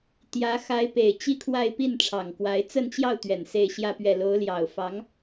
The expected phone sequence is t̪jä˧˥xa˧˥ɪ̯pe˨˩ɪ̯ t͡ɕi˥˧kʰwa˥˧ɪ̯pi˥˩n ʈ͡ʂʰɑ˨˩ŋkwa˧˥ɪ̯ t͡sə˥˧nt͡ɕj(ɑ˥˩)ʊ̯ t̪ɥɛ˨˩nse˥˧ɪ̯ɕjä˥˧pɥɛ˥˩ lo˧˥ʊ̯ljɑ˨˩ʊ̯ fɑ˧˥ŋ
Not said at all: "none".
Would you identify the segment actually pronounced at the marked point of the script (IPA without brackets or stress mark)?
ɑ˥˩